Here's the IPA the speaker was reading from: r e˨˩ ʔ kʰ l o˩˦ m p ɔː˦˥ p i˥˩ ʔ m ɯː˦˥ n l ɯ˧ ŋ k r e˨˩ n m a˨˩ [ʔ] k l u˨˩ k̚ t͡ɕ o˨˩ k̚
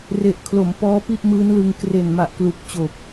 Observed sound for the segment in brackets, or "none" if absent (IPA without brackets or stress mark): ʔ